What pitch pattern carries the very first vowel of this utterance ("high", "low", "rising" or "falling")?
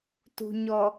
low